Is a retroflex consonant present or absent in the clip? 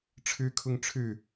present